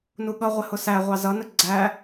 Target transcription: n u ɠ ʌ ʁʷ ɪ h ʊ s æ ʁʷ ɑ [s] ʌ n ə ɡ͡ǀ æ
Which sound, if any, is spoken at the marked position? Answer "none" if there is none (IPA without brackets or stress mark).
z